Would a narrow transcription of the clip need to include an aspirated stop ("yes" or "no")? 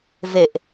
no